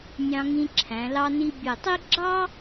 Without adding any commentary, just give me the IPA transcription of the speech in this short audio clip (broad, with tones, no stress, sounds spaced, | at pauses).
nʲ ɑ̃˧ ŋ ĩ˧ ǁʰ æ̃˩˧ l ɑ˧ n i˧ bʲ ɛ˧˩ tˤ i˥ ɡ͡ǁ ɑ˥